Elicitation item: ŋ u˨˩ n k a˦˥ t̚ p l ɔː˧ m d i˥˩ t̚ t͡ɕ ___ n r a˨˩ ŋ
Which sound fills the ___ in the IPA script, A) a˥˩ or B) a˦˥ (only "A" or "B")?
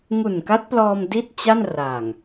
A